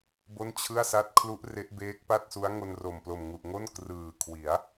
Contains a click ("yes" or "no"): no